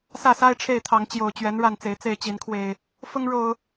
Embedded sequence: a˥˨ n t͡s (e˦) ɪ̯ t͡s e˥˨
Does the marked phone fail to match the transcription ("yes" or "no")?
yes